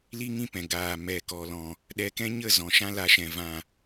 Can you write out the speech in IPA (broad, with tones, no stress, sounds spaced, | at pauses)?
l i˦ ŋ ĩ˦ p ɛ̃˨ ɡ aː˨ m ɛ˨ k ɔ˨ l ɔ̃˨ | ɗ ɛ˧ k ɛ̃˦ ɲ ə˦˨ z ɔ̃˨ ʃ ã˦ l a˧ ʃ ɛ̃˨ v ã˨